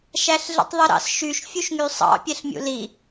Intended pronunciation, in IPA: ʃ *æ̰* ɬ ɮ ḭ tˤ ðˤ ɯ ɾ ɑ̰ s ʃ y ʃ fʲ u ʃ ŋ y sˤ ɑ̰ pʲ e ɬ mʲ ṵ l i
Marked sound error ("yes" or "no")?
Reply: yes